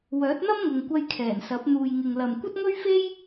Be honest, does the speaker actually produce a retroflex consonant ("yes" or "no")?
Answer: no